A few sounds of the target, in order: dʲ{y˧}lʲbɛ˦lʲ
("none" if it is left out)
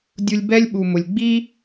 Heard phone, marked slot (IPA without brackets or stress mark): u˧